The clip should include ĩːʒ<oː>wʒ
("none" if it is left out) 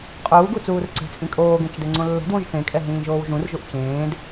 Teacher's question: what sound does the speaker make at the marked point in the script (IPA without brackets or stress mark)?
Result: oː